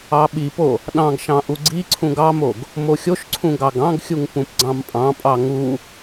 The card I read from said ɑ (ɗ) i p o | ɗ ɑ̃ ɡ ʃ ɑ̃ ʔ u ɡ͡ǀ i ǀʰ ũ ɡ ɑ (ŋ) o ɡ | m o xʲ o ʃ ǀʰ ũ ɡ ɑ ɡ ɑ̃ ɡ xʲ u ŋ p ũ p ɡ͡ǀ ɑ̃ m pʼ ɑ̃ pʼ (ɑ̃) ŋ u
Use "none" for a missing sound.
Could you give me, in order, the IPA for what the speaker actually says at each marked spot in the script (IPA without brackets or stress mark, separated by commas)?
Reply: ɓ, m, ɑ